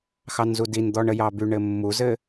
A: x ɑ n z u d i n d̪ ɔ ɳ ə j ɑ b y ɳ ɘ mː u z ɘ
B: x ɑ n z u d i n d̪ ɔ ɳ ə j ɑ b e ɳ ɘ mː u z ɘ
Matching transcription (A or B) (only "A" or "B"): A